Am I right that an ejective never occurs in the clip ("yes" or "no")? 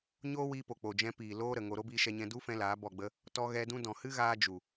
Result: yes